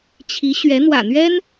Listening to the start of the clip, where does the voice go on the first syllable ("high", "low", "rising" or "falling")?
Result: rising